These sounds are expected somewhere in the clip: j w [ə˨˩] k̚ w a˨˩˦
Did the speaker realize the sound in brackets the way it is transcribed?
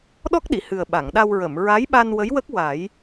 no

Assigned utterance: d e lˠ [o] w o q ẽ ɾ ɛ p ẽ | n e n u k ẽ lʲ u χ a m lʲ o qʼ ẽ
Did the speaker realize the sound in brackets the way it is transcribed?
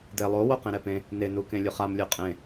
yes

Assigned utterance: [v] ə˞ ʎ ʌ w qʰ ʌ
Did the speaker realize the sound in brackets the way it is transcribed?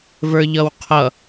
yes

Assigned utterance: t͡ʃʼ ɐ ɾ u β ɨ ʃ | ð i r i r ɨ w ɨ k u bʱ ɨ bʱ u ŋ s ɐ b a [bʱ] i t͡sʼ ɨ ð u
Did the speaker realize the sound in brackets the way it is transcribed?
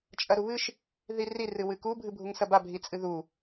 yes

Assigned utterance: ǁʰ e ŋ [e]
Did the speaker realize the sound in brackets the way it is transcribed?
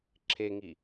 no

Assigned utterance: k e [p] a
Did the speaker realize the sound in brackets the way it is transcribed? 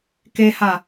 no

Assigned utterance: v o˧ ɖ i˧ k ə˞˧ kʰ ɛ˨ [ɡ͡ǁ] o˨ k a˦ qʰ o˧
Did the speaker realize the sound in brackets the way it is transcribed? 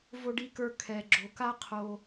yes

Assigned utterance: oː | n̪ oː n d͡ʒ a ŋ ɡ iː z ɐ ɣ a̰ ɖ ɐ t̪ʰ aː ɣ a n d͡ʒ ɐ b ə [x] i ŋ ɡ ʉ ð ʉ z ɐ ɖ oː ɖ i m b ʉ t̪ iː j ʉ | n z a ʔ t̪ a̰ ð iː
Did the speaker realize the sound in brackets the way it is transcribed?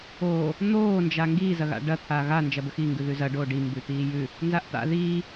yes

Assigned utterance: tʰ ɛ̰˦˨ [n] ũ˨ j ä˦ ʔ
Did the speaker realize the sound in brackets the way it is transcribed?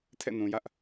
yes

